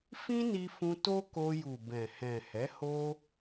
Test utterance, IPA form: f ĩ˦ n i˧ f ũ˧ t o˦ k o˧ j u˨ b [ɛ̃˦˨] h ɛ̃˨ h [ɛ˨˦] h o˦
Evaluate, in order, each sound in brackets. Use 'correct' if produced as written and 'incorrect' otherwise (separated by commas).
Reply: incorrect, correct